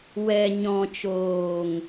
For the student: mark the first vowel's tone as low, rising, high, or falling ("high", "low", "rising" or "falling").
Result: low